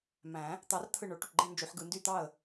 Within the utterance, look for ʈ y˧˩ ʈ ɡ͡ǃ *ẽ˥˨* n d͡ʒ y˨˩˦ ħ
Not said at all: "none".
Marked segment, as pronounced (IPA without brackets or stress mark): ẽ˥˨